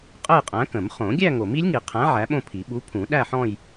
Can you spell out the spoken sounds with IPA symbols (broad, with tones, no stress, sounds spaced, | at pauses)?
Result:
qʼ ə˥˧ j qʼ æ̃˨˥ k ə̃˨˩˦ m χ õ˨˩˦ ɡʲ æ˥˧ ŋ o˨˩˦ m i˨˥ lʲ ŋ i˨˩˦ qʰ æ̃˨˥ ʕ æ˨˥ ɓ õ˥˧ pʰ i˨˩˦ ɓ u˨˥ pʰ ũ˨˩˦ ɗ æ˥˧ ħ ɔ̃˥˧ j